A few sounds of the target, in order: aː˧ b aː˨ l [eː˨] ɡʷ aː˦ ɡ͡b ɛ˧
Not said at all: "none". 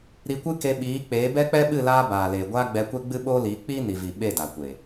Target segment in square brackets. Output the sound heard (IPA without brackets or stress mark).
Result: eː˨